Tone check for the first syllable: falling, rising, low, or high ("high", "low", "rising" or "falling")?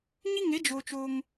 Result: high